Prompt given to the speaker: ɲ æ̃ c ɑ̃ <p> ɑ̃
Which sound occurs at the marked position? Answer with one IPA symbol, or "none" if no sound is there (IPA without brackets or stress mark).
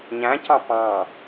p